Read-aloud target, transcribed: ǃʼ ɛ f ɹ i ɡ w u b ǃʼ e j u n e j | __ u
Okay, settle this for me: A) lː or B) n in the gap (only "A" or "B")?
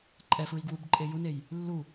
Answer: A